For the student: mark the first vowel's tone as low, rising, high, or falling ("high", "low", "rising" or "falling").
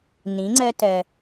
rising